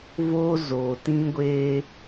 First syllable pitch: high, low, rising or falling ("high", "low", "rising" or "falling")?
high